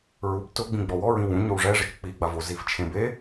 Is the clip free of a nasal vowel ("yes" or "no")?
no